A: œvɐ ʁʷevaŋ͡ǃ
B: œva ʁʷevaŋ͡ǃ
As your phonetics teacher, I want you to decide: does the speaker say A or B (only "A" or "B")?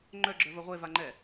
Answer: A